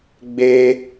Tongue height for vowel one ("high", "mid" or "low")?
mid